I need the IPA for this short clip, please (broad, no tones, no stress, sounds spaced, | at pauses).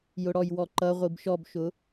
j ʊ ɽ ɔ j w ɔ ǃ ʌ ʁʷ i b ʃ ɔ b ʃ ʊ